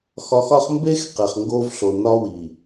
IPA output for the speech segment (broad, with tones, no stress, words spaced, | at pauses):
xɒ˨xɒ˦χ mbe˦x qe˨χŋɡoː˦vɬo˨ nɒ˦wi˨